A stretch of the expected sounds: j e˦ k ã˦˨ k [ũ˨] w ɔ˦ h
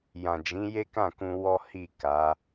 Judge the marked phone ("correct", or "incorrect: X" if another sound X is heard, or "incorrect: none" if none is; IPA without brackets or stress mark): incorrect: ũ˧